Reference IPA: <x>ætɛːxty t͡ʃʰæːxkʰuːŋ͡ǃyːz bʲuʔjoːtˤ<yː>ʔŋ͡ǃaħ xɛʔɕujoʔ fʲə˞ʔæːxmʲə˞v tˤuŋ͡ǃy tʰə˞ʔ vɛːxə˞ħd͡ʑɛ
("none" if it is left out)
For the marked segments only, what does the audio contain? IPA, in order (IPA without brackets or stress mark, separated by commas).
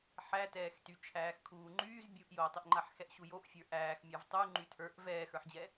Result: ħ, y